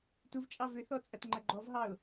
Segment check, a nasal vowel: absent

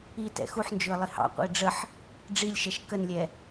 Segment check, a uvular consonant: present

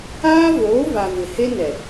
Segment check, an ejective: absent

